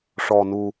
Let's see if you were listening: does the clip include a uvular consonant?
no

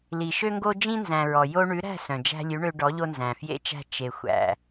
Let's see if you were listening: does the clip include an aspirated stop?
no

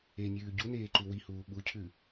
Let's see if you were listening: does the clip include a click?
yes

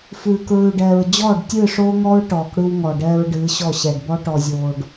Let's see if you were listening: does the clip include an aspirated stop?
no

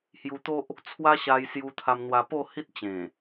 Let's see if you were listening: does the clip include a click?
no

